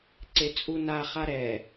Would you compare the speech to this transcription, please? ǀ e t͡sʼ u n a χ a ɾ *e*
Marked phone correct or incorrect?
incorrect